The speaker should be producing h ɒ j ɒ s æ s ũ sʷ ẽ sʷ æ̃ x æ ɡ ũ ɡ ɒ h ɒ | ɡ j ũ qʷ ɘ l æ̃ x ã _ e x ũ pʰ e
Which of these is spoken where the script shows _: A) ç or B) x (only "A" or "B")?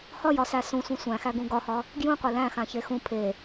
A